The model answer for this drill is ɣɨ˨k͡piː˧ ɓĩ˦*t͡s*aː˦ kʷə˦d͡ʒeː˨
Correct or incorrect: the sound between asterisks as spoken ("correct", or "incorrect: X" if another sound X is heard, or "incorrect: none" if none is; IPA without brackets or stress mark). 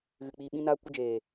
incorrect: n